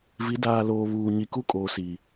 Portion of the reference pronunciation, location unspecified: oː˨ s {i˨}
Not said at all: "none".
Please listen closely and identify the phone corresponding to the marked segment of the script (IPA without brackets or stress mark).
i˨